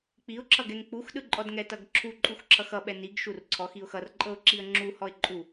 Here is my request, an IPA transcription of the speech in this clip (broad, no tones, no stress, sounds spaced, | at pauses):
k͡p i ʊ̯ ǁʰ ʌ ɡ ɛ ŋ k͡p u x ɗ ɯ ǃʼ ɔ d ŋ ɛ t ʌ ɡ ǁʰ u ǃʼ u x ǁʰ ʌ x ʌ ɓ ɛ n i ɡ ʃ u r ǀʰ ɔ x i ʊ̯ x ʌ r ǃʼ ɤ ʊ̯ ǁ i ə̯ ŋ͡ǁ u h ɔ ɪ̯ ǃʼ u